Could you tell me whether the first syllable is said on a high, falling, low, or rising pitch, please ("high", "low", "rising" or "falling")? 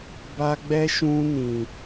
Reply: high